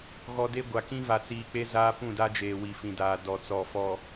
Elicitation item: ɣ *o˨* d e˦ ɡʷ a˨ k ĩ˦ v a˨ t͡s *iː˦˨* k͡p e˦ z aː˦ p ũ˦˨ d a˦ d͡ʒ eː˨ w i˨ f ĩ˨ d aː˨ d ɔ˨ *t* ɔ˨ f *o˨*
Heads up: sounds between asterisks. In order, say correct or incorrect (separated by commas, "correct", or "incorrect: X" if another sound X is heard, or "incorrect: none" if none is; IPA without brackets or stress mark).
incorrect: ɔ˨, incorrect: iː˨, incorrect: t͡s, incorrect: ɔ˨